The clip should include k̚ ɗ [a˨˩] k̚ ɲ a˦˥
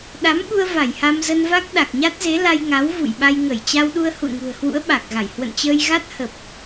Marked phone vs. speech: correct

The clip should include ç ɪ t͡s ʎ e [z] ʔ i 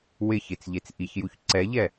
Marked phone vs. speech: incorrect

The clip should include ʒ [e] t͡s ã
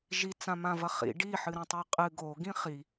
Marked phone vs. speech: incorrect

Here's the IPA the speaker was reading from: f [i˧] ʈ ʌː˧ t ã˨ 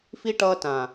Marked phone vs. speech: correct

